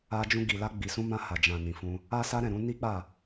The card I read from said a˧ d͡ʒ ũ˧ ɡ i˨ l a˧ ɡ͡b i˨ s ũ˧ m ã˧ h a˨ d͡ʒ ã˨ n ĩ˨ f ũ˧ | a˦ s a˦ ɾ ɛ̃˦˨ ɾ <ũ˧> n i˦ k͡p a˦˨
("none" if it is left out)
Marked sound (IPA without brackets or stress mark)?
ũ˧